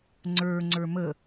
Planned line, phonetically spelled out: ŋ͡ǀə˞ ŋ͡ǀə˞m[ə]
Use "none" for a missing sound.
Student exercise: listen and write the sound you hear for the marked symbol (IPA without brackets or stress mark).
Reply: ə